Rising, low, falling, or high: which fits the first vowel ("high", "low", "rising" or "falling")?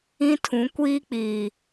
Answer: high